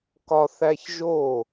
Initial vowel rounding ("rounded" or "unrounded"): rounded